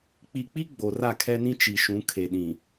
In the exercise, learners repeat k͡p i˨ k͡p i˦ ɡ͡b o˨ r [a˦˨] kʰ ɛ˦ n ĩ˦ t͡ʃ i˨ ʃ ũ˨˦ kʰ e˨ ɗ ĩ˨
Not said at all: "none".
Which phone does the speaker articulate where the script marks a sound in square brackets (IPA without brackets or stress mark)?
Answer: a˦˨